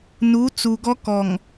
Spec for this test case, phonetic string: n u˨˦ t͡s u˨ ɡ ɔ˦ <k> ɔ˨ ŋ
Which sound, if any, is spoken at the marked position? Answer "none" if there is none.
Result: k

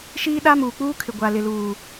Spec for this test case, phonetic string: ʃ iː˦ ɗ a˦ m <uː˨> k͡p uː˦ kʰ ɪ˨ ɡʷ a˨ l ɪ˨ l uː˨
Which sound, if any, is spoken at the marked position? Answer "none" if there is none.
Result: uː˨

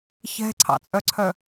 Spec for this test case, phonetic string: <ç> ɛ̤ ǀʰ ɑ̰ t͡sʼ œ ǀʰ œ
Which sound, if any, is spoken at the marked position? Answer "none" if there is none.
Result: ç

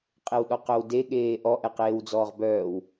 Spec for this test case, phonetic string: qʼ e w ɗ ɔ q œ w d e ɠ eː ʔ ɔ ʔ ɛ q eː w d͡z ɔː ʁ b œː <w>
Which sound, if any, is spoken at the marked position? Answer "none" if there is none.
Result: w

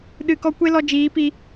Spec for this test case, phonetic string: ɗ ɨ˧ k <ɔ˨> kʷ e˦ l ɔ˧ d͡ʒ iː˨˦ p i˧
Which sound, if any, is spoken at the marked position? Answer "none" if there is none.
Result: ɔ˦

